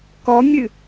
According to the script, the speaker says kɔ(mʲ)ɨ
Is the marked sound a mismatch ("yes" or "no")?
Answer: no